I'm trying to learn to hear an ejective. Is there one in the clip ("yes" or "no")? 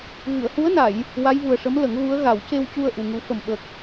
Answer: no